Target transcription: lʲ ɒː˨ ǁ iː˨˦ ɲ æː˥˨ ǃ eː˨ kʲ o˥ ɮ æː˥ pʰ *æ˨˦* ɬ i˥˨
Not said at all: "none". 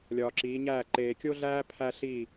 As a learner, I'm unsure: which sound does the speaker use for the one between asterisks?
æ˥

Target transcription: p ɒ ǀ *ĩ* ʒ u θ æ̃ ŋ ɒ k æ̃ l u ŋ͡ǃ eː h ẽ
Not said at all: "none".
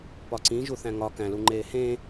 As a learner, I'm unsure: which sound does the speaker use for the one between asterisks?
ĩ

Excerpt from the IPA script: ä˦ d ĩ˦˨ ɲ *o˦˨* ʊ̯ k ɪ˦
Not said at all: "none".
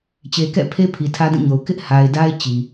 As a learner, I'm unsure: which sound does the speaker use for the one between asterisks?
o˨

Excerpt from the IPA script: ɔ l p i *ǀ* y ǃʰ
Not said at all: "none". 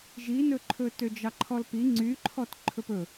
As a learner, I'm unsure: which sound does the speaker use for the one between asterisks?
ŋ͡ǀ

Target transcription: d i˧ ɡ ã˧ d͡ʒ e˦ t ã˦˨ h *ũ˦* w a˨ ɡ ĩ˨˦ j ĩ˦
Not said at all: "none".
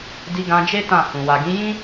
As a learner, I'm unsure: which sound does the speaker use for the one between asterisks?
ũ˨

